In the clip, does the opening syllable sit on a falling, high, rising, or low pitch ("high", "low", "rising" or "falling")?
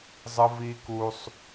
high